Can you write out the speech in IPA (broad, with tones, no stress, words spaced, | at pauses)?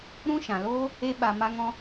ɾũ˦ʃã˨loː˦ | e˦ɓa˧ ma˦ŋɔ̃˦